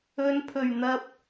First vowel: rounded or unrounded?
rounded